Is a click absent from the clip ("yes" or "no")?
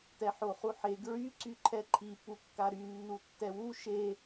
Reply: no